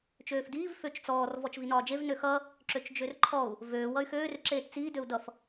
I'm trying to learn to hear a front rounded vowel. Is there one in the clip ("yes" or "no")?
yes